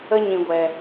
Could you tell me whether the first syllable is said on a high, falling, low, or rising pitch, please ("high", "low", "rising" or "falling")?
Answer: high